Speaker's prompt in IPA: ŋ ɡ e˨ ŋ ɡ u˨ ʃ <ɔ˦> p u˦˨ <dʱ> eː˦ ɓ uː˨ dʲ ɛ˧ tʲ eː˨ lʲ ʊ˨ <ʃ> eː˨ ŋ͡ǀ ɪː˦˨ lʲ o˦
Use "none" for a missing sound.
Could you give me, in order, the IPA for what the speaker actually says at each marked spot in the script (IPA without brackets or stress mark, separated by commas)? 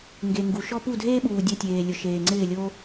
ɔ˦, dʱ, ʃ